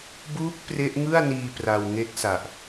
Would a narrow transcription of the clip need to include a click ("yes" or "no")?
no